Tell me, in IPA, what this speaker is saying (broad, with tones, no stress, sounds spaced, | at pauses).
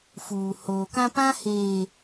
f uː˨ h oː˨ k ã˦ p ã˦ h eː˨